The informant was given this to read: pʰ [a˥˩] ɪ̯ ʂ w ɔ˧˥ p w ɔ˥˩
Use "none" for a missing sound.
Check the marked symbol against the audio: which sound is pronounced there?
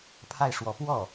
a˥˩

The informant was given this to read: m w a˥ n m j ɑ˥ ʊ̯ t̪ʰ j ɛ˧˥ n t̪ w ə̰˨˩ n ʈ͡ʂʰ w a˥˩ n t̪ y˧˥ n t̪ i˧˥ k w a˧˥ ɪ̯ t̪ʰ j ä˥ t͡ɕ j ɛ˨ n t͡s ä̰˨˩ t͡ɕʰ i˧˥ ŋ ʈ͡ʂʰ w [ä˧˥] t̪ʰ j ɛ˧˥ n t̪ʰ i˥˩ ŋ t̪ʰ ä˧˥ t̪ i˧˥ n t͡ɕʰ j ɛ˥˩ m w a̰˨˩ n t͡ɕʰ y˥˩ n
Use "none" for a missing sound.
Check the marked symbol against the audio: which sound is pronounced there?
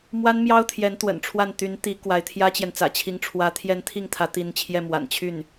ä˧˥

